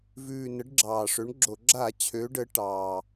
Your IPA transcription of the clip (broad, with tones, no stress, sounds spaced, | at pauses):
v ʉː˨˩ n ə˨˥ ɖ ɡ͡ǁ ɑː˨˩ ʂ ø˨˥ ɳ ɡ͡ǁ o˧˩˧ ɡ͡ǁ a˧˩˧ t͡ɕʰ ø˨˥ ɖ ə˨˥ ʈ ɑː˨˩